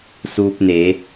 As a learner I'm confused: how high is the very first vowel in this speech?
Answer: high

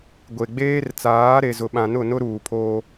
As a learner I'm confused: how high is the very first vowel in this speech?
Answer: mid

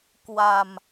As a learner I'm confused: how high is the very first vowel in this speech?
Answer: low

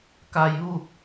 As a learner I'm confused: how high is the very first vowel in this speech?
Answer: low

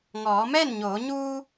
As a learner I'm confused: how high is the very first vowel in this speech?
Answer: mid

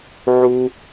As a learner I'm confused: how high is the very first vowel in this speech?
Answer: high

